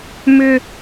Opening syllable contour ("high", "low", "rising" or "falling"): high